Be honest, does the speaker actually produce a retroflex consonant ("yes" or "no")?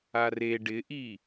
yes